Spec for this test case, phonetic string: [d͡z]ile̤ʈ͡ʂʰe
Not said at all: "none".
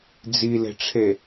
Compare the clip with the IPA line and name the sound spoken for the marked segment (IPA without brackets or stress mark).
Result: d͡z